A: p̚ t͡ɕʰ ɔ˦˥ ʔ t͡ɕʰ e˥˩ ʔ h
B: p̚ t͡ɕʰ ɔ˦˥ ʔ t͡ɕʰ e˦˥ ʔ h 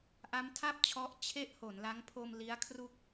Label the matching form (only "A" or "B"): A